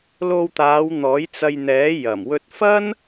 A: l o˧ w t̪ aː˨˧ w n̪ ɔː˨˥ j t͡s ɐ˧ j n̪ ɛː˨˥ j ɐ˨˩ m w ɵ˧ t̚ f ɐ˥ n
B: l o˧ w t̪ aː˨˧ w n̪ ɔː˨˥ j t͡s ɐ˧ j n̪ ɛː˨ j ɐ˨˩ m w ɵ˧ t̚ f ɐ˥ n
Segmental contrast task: A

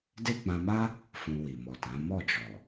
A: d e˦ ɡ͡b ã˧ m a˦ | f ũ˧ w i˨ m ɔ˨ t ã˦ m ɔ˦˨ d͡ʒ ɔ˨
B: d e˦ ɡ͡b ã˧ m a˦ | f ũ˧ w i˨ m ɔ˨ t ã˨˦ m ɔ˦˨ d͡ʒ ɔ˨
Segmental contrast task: B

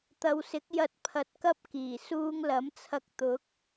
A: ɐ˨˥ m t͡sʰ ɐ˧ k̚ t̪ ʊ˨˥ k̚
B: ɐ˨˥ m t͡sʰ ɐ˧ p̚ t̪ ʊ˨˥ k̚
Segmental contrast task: A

